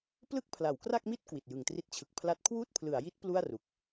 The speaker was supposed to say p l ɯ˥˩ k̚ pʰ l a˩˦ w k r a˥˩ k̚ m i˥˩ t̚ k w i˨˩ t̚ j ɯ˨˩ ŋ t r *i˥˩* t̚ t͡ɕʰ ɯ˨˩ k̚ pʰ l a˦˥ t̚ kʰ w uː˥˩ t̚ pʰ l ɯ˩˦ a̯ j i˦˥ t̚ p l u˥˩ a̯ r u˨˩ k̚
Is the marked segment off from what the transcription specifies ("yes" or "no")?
no